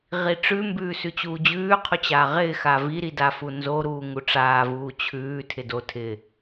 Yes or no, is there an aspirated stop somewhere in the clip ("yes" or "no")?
yes